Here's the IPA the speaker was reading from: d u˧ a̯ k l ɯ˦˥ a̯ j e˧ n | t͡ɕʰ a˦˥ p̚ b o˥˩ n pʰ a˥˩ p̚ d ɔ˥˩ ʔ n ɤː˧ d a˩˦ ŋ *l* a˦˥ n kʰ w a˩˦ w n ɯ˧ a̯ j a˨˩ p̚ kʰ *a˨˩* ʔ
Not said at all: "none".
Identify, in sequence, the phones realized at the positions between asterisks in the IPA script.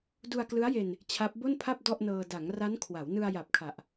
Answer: r, a˨˩

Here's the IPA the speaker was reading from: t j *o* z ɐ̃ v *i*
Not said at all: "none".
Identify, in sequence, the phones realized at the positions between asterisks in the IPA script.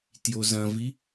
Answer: o, i

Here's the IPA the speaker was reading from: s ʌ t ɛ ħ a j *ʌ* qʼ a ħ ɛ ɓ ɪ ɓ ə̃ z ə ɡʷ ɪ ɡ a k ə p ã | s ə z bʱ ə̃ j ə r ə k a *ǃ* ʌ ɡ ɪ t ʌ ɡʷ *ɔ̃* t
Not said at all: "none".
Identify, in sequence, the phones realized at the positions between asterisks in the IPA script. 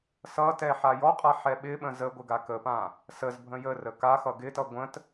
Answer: ɔ, x, ə̃

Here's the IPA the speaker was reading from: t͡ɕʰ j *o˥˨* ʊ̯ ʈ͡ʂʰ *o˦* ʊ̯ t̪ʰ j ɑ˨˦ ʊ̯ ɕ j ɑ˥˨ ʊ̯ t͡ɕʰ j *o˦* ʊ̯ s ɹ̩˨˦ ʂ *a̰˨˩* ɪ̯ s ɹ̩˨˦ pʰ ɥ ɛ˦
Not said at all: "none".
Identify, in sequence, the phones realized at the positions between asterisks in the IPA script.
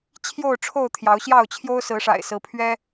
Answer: o˥˨, o˥˨, o˦, a̰˨˩

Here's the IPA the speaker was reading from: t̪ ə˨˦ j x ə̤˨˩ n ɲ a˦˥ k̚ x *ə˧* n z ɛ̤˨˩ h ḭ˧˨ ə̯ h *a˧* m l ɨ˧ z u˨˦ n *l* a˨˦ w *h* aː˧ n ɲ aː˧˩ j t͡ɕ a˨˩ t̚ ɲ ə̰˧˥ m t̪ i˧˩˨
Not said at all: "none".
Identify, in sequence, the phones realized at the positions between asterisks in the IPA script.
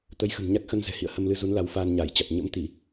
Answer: ə˧, ə˧, l, f

